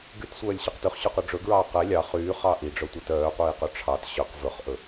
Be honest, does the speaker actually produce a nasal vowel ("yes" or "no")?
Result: no